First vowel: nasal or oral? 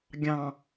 nasal